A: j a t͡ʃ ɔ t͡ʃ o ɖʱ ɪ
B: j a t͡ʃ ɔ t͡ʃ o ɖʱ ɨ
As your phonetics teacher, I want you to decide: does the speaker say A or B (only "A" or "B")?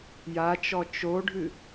B